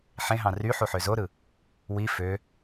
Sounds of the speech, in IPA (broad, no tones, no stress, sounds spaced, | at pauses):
ħ ẽ ɦ ɑ̃ r y ħ u ħ ø z o ɾ ɯ | w i f ø